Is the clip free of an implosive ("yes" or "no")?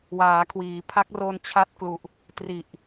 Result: yes